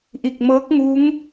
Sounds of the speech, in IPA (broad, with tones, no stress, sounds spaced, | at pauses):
ʔ i˧˩ k̚ m ɤː˧˥ k̚ ŋ u˧˥ ŋ